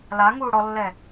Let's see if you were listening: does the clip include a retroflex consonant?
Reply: yes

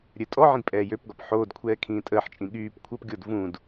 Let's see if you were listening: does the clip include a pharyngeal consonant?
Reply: yes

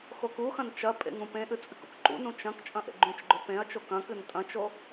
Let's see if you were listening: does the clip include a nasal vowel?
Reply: yes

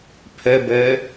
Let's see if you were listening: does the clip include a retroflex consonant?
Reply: no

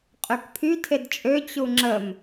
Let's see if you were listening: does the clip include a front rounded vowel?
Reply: yes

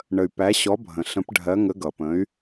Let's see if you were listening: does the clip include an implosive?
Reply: no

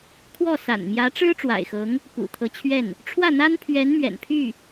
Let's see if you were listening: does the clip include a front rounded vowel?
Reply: yes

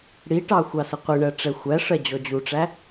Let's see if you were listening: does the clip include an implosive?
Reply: no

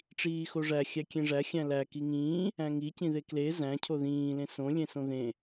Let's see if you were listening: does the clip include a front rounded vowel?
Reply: no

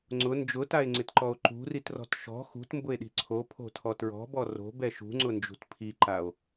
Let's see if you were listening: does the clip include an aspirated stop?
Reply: yes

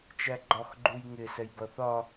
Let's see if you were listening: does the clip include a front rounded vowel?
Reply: no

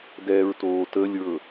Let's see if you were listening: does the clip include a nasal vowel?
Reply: no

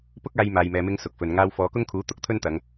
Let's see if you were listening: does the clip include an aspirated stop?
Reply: yes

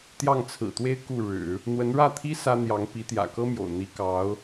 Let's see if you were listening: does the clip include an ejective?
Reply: no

